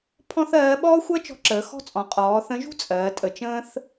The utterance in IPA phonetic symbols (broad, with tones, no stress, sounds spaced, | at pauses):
pʰ ɔ̃˥ θ ɜː˧˥ ɓ ɔː˥ xʷ ɜ˥ t͡ʃ ɔ̤˧˥ ǁ əː˩˧ x ɔ̤˥ t͡sʼ ɔ̃˩˧ qʼ ɔː˩˧ θ ə̃˧˥ ʒ ṳ˥ t͡sʼ ɜː˩˧ tʼ ə˩˧ t͡ʃ ə̃ː˥ θ